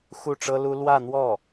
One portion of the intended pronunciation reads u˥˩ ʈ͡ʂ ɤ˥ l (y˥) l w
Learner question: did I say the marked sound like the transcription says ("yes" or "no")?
no